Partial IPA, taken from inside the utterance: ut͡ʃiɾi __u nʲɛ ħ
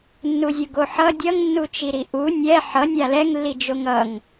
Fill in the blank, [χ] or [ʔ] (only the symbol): ʔ